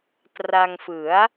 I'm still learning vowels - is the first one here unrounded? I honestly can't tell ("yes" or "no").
yes